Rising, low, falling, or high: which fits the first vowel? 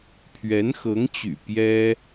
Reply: rising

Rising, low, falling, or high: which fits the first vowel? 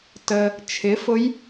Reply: low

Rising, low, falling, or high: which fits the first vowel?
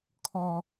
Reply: high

